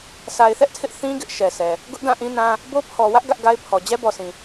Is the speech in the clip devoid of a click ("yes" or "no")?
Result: yes